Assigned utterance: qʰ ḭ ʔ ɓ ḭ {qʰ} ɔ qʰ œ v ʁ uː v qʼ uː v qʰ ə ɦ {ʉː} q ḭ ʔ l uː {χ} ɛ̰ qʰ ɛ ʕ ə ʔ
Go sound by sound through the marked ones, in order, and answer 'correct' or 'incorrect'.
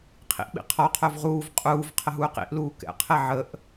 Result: correct, incorrect, incorrect

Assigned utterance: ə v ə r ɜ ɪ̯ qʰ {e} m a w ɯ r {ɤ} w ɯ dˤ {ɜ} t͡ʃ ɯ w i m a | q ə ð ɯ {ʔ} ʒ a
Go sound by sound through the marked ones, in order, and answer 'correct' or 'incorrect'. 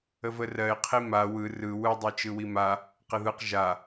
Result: incorrect, incorrect, correct, incorrect

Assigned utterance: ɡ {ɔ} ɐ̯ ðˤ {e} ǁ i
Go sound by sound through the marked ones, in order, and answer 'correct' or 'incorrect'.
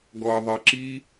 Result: correct, correct

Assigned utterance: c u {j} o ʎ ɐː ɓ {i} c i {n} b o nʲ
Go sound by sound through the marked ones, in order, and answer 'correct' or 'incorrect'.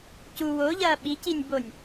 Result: incorrect, correct, incorrect

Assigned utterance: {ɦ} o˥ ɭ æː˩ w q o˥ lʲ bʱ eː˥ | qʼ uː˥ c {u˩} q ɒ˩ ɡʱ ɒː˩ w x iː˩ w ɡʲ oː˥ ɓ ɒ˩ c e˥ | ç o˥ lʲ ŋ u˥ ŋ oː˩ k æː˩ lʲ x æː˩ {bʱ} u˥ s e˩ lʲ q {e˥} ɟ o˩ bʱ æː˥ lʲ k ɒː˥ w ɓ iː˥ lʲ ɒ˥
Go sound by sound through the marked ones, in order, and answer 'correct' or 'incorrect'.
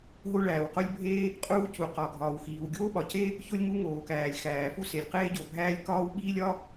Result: correct, correct, incorrect, incorrect

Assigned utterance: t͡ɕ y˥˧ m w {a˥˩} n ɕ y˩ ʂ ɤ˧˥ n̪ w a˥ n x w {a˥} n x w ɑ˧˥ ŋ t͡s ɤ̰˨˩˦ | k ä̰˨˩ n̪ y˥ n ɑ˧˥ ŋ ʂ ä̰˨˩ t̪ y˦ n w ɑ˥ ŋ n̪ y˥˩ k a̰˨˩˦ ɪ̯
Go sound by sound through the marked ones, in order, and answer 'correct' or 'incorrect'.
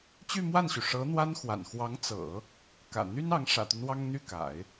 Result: correct, incorrect

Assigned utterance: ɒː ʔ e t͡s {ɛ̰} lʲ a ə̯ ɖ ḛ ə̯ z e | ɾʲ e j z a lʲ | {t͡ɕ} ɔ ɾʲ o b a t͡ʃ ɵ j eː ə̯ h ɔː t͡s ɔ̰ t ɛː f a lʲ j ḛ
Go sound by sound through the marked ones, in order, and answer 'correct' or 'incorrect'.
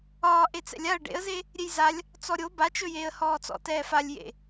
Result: correct, incorrect

